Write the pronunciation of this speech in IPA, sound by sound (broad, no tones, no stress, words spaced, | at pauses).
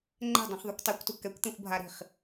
ŋ͡ǃɛ̤dˤũχðˤukʷ tˤɛkʷtu kɛkʷt̪ẽxʷbʱaɾi̤χ